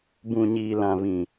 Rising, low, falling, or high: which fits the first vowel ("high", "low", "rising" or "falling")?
low